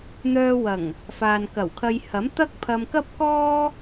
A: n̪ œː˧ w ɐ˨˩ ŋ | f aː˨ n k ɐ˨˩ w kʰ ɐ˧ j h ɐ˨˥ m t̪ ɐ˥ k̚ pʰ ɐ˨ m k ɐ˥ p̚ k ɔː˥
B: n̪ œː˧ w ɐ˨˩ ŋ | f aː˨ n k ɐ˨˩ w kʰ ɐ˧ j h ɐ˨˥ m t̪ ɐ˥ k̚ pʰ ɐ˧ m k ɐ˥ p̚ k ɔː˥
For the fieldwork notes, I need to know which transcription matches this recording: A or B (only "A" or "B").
B